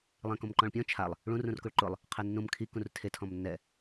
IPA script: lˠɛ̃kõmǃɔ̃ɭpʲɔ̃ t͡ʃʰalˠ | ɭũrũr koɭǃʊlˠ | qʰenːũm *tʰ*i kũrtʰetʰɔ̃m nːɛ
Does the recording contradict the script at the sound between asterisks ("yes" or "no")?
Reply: yes